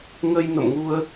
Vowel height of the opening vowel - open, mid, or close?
mid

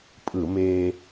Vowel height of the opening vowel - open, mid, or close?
close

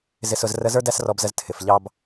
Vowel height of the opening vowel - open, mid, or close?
close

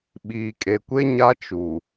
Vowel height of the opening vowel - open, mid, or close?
close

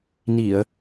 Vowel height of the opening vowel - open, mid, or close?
close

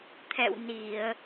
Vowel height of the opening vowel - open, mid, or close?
mid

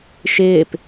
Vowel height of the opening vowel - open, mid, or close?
close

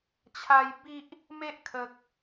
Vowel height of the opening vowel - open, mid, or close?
open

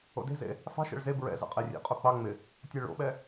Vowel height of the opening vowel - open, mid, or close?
mid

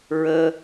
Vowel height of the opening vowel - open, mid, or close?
mid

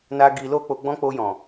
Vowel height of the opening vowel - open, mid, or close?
open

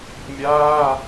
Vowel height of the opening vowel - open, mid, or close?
open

